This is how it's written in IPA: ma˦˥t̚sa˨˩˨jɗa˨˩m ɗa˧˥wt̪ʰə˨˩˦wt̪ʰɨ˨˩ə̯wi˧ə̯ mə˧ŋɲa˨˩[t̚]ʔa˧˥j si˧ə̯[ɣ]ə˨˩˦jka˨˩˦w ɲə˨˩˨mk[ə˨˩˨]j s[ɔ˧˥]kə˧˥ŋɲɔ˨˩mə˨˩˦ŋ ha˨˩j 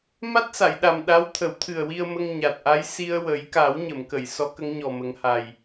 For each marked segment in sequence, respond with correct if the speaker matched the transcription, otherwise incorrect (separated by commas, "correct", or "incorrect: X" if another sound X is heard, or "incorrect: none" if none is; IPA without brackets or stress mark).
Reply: correct, incorrect: w, correct, correct